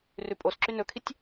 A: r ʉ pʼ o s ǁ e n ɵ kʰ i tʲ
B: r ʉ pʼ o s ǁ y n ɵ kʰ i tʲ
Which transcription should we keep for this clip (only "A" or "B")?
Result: B